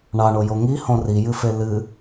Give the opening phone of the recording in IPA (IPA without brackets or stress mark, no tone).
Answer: ɳ